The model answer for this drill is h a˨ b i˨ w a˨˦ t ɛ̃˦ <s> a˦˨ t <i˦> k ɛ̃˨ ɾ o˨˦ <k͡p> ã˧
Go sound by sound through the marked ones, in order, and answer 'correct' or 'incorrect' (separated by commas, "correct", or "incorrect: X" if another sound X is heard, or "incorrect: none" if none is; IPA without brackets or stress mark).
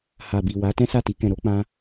correct, incorrect: i˧, correct